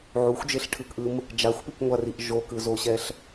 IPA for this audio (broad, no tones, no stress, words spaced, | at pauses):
ʕuxʷd͡ʒeɬʈʰɯkʔɯm | d͡ʒaxʷpikŋʷariʔ ʒokɯzoɕɛɬ